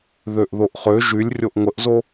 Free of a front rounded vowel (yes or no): no